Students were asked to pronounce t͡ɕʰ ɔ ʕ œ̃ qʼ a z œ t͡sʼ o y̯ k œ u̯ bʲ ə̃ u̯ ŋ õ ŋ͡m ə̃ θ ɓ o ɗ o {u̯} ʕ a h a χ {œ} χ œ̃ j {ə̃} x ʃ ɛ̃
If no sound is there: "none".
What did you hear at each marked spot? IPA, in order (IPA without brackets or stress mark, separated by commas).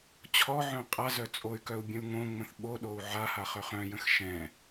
u̯, œ, ə̃